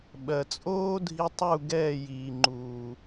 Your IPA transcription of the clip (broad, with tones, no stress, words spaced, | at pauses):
ɓɜ˨ t͡sʼoː˦dʱi˧ tˤu˦˨ɡɛː˦˨ jiː˨ŋ͡ǃuː˨